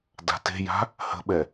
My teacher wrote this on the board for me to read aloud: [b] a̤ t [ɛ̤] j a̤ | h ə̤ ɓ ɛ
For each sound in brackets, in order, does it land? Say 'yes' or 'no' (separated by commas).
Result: no, no